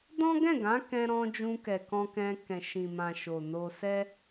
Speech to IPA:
d ɔ̃˦ ɡ ɛ̃˦˨ ɡ ã˨˦ k ɛ̃˦ ɾ ɔ̃˦ d͡ʒ ũ˧ k ɛ˨ k ɔ̃˧ k ɛ̃˧ k ɛ̃˨ ʃ ĩ˨ m ã˨ ʃ o˨ n o˧ s ɛ˦

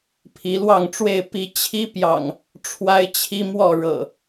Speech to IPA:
pʰ i˨˦ l w ɑ˥˨ ŋ ʈ͡ʂ w e˥˨ ɪ̯ p i˦ t͡ɕʰ i˦ p j ɑ̰˨˩ ŋ | ʈ͡ʂʰ w a˦ ɪ̯ t͡ɕʰ i˦ m w ɔ˥˨ ɻ ɤ̰˨˩

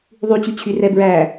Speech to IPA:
ðˤ y t͡ɕ y t͡ɕʰ y r ɛ b ɹ æ

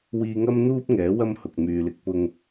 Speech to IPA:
w iː˧ ŋ ɐ˥ m n̪ uː˥ p̚ ŋ ɛː˨˥ w ɐ˥ m h ʊ˨ k̚ m yː˨ l ɪ˨˥ k̚ p ʊ˧ ŋ

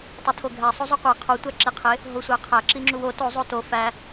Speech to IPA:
tˤ o tʰ o ɡʱ æ sˤ o zˤ u qʷ e qʰ o tʷ æ ǁ e qʰ e | ɦ o sʷ æ qʰ æ ǁ i ŋ͡ǁ u w o t o zˤ o t o f æ

